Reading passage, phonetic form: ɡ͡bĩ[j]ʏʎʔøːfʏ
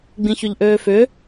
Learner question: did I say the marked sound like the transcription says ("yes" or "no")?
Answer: no